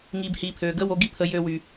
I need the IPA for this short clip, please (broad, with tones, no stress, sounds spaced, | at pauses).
ŋ iː˨ b h iː˨ pʰ øː˨ ɡ əː˦ w o˨˦ ɡ i˦ pʰ ə˧ j ø˧ w y˨